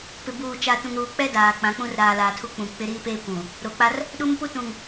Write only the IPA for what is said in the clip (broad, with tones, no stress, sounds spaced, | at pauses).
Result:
p ɪ˨ b uː˨ t͡ʃ a˨ t ũ˨ ŋ ɾ uː˨ k͡p ɛ˦ d aː˨ k͡p ã˨˦ k͡p ũ˦ r ɾ aː˨ l aː˨ tʰ u˦ k͡p ũ˨ k͡p ɪ˦ ɾ iː˦ p eː˦ kʷ ũ˨ | ɾ o˨ k͡p a˦ r | ɗ u˦ m p u˦ t ũ˨ ŋ